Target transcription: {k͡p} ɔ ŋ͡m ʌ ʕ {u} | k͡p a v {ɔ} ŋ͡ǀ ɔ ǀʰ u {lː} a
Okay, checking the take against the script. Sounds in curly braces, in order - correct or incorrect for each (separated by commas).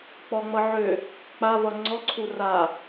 correct, incorrect, incorrect, incorrect